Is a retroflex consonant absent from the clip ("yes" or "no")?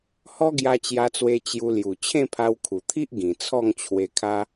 yes